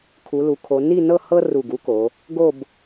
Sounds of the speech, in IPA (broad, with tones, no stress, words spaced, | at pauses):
kʰu˩˧lu˩˧kʰo˩˧ ni˥˧nɤ˥˧ hɤ˥ ru˧˩ɡu˥ko˩˧ | ɡo˥˧b